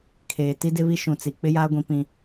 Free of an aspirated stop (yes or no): no